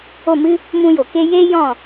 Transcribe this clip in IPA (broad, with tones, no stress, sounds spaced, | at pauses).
o˦˨ m ɨ˦ | m ũ˧ j o˨ k e˦ j eː˦ j ɔ̃˦˨